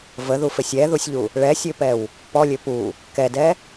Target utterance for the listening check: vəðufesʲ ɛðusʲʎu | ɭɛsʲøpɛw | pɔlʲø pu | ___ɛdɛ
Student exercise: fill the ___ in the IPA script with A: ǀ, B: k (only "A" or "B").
B